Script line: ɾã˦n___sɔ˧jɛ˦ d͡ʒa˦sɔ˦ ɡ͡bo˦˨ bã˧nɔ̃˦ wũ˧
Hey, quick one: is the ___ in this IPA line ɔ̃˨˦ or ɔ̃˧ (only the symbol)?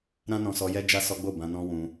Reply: ɔ̃˧